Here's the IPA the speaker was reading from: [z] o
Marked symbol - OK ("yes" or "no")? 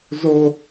yes